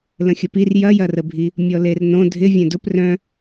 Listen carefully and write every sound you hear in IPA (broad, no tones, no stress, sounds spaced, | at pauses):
l ə̃ xʲ ə p i r j ɐ j ɐ r ə bʱ i | mʲ ɔ l e r n õ dʱ ɪ vʲ œ̃ d ʊ p r œ̃